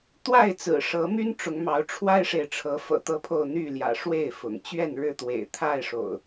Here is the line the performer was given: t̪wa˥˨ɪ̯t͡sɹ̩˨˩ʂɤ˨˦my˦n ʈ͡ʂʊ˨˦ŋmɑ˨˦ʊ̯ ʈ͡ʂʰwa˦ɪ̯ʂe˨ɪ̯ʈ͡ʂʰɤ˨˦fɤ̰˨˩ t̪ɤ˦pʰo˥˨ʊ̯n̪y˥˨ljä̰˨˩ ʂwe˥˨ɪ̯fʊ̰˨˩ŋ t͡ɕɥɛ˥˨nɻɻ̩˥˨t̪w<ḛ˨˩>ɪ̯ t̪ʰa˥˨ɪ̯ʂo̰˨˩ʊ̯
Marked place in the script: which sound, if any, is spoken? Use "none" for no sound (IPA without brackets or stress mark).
ḛ˨˩